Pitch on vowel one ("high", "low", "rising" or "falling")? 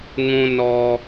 high